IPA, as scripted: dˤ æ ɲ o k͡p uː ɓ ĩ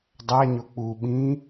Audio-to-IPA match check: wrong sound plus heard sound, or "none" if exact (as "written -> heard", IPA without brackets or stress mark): none